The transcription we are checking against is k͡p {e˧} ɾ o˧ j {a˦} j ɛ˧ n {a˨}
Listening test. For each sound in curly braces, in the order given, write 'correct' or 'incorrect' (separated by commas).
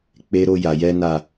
incorrect, incorrect, correct